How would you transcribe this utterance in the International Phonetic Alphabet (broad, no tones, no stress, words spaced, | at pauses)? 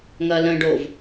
ŋɐlə̃ɖov